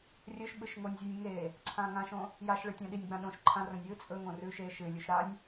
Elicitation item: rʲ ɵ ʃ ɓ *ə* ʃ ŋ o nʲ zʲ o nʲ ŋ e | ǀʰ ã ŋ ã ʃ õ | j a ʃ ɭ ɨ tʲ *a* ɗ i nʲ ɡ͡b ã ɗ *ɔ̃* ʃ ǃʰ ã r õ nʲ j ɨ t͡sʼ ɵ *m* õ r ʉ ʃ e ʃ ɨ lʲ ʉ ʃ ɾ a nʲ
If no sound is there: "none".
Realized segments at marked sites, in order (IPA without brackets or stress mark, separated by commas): ɨ, ã, õ, ŋ